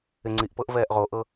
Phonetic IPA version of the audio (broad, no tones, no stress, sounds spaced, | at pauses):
ɪ ŋ͡ǀ i ʔ p ɤ ʔ v ɛː ʔ ʁ o ʔ ɤ